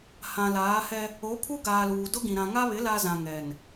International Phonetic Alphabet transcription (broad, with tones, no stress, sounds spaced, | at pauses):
h ã˨ l aː˨˦ h ɛ˦ | o˨˦ pʰ u˦ ɡ aː˨ l uː˨ d ʊ˦ ɡ ĩ˨ ɾ ã˨ ŋ a˦ β ɪ˨˦ l a˦ z ã˨ ŋ ɛ˨ n